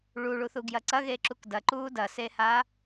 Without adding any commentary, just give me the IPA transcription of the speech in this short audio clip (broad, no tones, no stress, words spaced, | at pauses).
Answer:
ɭuɭuθuɡjɐ ǀɐɣeǁuk dɐǃuː dɐseha